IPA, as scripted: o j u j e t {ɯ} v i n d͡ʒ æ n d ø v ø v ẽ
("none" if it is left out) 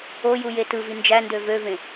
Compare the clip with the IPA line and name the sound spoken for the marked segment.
ɯ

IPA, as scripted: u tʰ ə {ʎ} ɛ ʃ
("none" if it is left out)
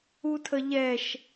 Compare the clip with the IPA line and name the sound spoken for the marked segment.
ʎ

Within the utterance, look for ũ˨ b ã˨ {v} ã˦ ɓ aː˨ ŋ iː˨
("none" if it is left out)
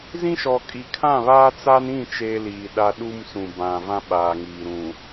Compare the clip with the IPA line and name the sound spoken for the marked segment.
v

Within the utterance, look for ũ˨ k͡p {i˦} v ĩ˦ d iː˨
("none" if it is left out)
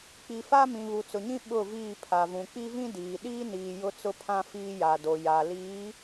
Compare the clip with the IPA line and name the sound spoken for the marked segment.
i˦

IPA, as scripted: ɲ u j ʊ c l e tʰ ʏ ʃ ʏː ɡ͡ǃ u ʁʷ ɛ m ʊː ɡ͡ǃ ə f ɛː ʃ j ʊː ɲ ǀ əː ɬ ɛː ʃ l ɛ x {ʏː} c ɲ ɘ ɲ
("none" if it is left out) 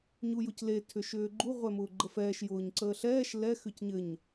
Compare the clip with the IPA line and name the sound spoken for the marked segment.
ʏ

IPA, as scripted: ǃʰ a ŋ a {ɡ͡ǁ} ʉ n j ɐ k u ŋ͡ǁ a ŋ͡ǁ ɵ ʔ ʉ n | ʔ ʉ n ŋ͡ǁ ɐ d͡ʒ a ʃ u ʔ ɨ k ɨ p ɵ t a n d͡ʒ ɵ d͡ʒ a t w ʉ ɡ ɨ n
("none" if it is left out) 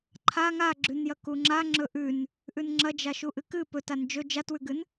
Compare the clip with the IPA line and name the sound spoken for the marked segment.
ɡ͡ǁ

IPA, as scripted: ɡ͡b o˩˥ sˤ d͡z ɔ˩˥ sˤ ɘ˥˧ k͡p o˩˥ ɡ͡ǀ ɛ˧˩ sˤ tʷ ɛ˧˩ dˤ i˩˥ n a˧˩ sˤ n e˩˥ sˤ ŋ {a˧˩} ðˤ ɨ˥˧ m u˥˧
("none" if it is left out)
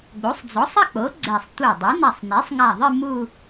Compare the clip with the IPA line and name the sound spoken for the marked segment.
a˧˩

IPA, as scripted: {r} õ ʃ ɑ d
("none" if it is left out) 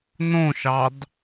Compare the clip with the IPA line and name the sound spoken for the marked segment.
n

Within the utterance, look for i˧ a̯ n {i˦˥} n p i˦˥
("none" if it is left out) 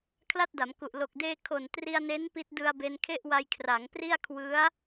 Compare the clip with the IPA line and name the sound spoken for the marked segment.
e˦˥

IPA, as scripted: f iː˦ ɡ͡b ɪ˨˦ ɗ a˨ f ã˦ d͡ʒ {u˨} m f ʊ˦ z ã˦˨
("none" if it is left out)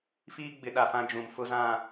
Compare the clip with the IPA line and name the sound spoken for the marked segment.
ũ˨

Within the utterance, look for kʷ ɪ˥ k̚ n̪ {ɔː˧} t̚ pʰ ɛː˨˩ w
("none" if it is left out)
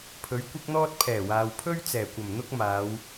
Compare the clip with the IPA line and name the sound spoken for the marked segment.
ɔː˥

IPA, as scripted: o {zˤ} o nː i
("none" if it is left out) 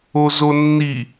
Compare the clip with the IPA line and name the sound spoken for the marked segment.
z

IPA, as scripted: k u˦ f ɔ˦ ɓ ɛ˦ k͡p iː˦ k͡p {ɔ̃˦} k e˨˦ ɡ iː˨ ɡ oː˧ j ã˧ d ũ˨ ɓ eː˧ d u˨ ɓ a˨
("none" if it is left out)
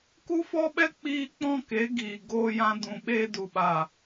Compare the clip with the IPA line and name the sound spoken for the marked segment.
ɔ̃˦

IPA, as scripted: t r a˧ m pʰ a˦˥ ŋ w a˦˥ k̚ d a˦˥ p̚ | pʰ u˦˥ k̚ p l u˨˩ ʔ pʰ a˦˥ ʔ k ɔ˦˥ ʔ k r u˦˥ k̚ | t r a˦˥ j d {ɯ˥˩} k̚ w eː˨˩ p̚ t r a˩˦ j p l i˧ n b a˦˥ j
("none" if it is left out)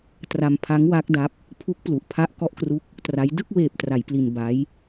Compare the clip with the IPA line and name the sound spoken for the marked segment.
ɯ˥˩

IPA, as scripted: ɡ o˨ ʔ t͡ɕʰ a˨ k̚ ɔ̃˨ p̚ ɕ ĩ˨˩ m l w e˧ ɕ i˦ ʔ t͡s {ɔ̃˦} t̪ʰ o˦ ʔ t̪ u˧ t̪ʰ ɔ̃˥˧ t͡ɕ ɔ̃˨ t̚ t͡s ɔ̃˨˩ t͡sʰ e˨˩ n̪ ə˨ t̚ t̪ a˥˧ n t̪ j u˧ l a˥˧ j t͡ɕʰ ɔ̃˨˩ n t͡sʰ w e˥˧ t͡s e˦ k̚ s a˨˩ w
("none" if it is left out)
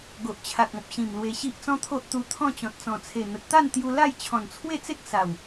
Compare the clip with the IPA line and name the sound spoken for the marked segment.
ɔ̃˦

